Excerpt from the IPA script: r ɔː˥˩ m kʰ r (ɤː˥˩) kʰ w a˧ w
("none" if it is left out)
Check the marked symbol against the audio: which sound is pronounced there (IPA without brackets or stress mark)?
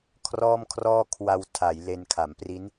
ɔː˥˩